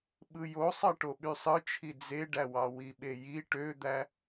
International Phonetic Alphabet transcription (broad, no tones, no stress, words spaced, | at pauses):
ɓɯjosˤɑ ʈoɓysˤɯt͡ʃʰi d͡zeɖæwɑ wiɓeji ʈød̪æ